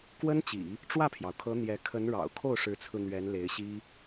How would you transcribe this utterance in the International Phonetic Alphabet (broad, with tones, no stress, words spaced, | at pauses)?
kwə˥nt͡ɕḭ˨˩˦ | ʈ͡ʂwä˥˩pʰjɑ˩ʊ̯kʰɤ˧˥ n̪jɛ˧˥ kʰə˧˥nɻɑ̰˨˩ʊ̯ kʰo˥˩ʊ̯ʂɻ̩˧˥t͡sʰɹ̩˧ n̪ɥɛ˧˥nle˧˥ɪ̯ɕi˥